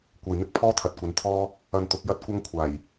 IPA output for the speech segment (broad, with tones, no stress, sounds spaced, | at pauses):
kʷ ɐ˧ j n̪ ɪ˥ k̚ pʰ ɔː˥ t̪ʰ ɐ˨˥ t̚ kʷ ɐ˨˧ n t̪ʰ ɔː˥ | ɐ˧ n t̪ ʊ˨˥ k̚ j ɐ˥ t̚ kʷ ɐ˥ ŋ kʷʰ aː˨˩ j